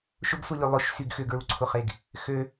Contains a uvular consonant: yes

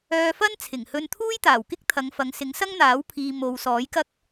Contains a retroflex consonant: no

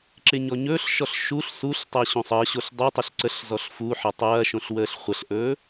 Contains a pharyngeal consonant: yes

